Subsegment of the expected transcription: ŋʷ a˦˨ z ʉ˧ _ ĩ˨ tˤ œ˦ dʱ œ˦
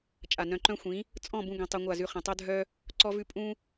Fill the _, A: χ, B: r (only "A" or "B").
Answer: A